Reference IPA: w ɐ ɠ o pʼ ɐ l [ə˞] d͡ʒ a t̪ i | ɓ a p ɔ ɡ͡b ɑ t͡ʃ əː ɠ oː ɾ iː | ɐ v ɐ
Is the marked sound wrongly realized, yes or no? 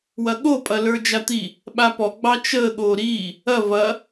no